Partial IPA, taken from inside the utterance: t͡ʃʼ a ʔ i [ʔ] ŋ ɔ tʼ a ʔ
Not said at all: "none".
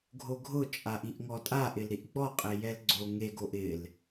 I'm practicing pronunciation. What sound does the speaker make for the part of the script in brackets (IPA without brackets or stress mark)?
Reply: ʔ